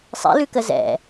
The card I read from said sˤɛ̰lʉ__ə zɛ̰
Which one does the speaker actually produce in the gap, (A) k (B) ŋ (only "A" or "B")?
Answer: A